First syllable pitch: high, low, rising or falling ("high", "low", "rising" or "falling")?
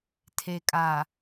low